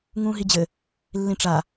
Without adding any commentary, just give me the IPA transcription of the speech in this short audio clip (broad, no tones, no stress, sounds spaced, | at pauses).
ŋ ũː ɦ i d͡ʑ ɘ | lː ĩ ʈ͡ʂ a